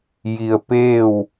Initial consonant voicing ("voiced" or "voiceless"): voiced